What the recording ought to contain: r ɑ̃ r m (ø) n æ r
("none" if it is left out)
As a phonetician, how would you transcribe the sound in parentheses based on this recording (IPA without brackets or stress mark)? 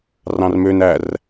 ø